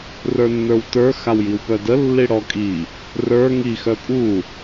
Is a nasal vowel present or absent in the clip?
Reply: absent